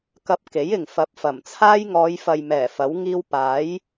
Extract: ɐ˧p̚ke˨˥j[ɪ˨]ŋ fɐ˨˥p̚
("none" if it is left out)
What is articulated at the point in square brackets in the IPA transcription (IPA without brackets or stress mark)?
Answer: ɪ˨